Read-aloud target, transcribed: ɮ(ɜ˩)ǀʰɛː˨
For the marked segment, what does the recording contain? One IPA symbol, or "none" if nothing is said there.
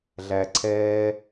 æ˩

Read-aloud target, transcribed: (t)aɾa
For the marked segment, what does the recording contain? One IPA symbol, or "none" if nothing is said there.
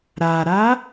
ɾ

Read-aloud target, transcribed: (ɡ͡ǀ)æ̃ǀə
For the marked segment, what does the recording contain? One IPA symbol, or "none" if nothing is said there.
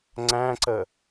ŋ͡ǀ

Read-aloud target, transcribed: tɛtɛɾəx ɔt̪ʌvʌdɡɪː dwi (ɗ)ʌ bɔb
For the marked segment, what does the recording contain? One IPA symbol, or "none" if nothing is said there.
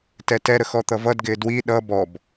ɗ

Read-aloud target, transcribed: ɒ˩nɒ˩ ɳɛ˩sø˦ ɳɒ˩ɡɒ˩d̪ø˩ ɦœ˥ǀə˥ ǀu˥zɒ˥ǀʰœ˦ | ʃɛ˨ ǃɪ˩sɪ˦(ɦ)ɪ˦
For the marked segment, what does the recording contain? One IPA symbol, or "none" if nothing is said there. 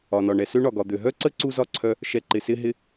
ɦ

